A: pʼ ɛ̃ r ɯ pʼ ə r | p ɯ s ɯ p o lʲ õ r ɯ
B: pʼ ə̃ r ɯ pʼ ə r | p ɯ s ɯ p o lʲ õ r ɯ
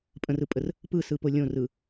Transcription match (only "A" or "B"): B